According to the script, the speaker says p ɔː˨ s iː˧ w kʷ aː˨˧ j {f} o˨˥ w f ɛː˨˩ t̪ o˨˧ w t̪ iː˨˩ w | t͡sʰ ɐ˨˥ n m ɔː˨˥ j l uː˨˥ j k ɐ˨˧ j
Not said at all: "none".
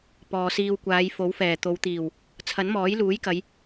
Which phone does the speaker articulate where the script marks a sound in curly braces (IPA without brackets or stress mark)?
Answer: f